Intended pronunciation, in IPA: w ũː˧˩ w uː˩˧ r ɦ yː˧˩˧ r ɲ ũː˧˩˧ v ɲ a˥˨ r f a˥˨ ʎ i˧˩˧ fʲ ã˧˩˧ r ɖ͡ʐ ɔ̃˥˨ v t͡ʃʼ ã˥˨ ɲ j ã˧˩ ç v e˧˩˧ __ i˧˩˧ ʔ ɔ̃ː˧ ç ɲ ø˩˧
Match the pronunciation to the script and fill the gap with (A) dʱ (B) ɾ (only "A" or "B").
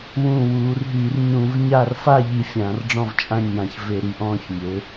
B